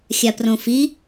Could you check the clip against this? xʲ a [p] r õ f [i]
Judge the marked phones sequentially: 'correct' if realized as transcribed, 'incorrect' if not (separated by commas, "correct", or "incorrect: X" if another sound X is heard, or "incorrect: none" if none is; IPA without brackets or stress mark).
correct, correct